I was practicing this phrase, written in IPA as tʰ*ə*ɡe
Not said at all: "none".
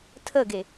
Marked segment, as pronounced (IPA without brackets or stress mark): ə